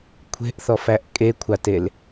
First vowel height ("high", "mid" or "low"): mid